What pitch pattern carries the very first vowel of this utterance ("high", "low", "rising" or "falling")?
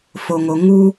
low